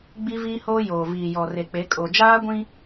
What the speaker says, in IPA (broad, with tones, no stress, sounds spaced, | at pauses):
ɡ͡b i˦ v iː˦ h oː˦ j oː˨ v iː˨ j ɔ˨ r e˨ k͡p e˨˦ kʼ o˨ d͡ʒ aː˦ ɡʷ ĩ˦